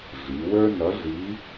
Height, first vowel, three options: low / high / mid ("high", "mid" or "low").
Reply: high